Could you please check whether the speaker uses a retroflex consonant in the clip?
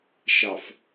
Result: no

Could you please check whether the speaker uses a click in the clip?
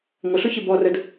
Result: no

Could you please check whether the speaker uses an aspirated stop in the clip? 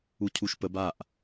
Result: yes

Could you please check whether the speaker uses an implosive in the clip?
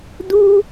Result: no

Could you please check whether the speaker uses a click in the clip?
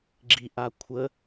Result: yes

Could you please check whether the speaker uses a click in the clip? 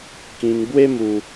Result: no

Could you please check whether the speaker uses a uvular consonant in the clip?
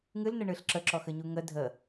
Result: no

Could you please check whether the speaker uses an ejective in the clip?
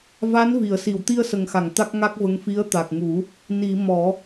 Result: no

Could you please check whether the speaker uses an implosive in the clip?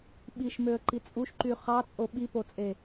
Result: yes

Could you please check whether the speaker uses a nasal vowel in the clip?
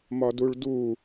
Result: no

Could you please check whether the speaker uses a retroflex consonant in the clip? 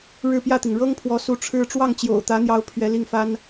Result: yes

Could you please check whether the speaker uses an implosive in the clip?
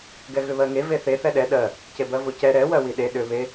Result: yes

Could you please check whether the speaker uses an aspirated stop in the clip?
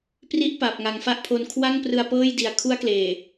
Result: yes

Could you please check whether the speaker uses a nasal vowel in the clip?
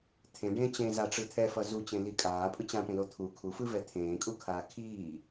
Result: yes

